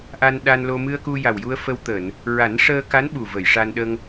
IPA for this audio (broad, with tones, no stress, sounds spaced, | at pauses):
ʔ a˧ n ɗ a˧ n l o˧ m ɨ˧ ə̯ k u˧ j a˨˩ w j u˧ ə̯ f ə˧ w t̪ əː˨˩˨ n | ɹ a˨˩˦ n ʂ əː˧ k a˧˥ n ɓ u˨˩ v ə˨˩˨ j ʂ a˧ n ɗ ə˧ ŋ